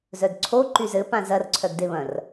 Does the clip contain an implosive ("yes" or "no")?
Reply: no